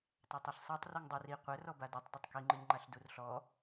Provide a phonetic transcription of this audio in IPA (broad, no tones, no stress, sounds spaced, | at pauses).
tˤ æ tˤ i ɬ sˤ a tˤ r u ŋ dˤ ɯ r i qʷ ɛ r ɔ b a d i tˤ d ɛ tˤ k i ŋ͡ǃ ɯ ɲ ŋ͡ǃ a ɬ d u r ɬ ɔ